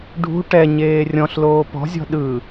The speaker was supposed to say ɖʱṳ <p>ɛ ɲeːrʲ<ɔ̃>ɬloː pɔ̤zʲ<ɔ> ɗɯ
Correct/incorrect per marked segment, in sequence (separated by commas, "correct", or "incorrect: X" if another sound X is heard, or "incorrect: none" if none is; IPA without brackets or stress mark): incorrect: ʈ, correct, incorrect: ɔ̤